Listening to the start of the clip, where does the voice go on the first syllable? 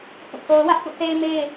falling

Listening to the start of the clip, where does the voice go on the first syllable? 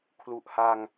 low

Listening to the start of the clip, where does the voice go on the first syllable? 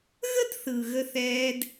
high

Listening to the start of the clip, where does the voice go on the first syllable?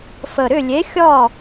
low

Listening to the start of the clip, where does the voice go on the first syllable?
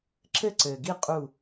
falling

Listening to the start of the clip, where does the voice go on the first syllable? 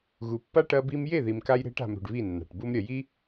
low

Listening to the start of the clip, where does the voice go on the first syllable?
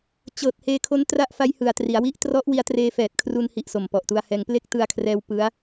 low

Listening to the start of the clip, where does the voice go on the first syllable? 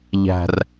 low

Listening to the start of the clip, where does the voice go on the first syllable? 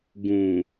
low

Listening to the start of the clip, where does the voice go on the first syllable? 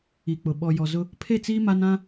low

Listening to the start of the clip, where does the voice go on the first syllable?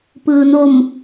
low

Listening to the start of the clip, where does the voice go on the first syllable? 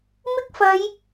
high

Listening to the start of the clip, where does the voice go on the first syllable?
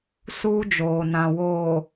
high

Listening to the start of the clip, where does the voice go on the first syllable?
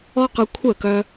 high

